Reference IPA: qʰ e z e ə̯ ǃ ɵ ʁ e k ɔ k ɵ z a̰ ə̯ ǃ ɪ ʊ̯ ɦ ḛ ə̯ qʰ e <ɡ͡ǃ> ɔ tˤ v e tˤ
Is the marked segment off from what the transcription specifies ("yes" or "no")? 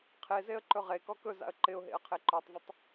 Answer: yes